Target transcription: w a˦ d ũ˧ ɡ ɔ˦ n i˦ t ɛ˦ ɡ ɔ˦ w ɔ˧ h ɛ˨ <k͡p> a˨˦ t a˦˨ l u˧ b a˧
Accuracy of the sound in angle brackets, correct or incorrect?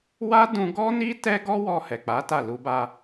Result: correct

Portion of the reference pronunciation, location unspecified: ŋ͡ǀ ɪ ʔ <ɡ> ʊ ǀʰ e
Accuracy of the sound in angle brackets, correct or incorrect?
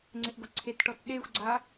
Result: correct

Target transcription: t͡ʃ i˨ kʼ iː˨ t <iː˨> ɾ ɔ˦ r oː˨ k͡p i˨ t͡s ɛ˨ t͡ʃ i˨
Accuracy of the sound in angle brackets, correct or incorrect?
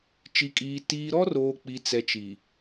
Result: correct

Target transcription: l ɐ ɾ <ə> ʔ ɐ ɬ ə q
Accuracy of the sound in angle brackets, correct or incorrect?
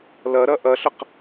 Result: incorrect: ɐ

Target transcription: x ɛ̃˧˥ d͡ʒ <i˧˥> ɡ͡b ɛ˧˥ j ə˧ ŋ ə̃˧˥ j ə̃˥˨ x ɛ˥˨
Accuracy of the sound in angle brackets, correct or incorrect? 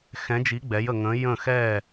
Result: correct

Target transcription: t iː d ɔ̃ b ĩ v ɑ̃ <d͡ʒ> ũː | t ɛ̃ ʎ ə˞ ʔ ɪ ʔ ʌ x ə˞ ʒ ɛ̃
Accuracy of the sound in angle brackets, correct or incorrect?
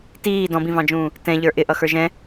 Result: correct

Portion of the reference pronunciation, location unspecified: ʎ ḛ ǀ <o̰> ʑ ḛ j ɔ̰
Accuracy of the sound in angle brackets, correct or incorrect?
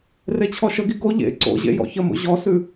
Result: correct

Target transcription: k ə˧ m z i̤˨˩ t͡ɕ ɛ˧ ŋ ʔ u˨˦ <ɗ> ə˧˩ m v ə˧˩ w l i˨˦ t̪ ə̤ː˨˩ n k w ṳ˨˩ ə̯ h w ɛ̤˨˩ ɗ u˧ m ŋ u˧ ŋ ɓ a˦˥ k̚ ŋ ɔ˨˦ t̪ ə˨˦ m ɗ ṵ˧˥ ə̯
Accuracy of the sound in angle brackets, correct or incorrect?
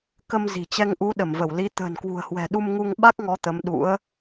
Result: correct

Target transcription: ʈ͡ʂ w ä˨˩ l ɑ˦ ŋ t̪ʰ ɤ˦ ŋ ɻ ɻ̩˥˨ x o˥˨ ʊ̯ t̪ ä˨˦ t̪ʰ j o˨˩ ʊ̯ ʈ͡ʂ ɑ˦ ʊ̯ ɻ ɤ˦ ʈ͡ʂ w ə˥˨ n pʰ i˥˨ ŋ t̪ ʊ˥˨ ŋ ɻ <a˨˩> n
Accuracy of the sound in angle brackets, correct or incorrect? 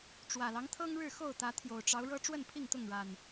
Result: correct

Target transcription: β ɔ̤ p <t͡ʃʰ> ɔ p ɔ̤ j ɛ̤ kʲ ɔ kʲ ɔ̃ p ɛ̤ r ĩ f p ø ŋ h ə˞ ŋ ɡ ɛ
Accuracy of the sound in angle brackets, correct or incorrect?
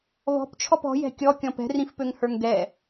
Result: correct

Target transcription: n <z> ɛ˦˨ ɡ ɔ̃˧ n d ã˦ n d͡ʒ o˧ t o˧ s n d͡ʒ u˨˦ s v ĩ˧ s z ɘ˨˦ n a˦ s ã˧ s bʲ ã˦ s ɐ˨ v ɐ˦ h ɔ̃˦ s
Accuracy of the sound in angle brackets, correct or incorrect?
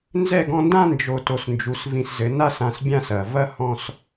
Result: correct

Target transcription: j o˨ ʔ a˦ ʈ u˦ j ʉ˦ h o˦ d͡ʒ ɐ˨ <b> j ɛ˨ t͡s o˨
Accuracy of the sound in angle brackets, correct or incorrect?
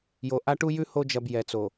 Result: correct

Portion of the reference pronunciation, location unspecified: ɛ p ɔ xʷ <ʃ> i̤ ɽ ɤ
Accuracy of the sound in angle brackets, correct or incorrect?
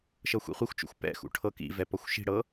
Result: correct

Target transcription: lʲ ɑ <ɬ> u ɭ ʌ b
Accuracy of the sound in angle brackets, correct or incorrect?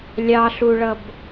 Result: correct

